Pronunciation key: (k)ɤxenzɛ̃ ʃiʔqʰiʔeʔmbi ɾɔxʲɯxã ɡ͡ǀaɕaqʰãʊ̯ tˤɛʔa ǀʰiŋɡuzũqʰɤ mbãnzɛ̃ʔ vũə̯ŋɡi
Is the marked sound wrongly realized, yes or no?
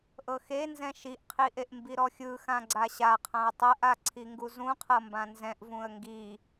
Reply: yes